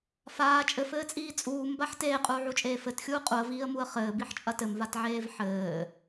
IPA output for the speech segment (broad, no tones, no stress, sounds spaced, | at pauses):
f aː t͡ʃʼ ɘ f ɘː t͡sʼ iː t͡sʼ uː m b a ħ t eː qʼ uː ʕ u t͡ʃʼ eː f ɘ t xʲ uː qʼ u ə̯ v iː ə̯ m u ə̯ χ ɘː b i ħ t͡ʃʼ ɐ t ɘ m v a t ʕ eː v ħ ɘː